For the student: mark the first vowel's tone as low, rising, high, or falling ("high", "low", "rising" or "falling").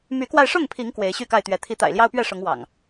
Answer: rising